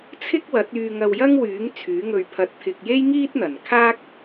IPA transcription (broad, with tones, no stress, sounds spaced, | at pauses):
t͡sʰ ɪ˥ k̚ w ɐ˨˥ t̚ yː˧ ŋ ɐ˧ w j ɐ˥ ŋ w yː˨˥ ŋ t͡sʰ yː˨˥ ŋ ɵ˧ ɥ pʰ ɐ˧ t̚ t̪ʰ ɪ˧ k̚ j e˥ j ŋ iː˥ t̚ n̪ ɐ˨˩ n kʰ aː˥ k̚